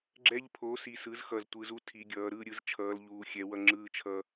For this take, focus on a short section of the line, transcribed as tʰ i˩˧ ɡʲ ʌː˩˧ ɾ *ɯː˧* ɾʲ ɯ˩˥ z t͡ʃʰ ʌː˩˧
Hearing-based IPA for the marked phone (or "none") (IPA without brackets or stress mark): ɯː˧